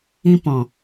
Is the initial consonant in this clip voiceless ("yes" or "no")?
yes